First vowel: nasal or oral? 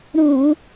nasal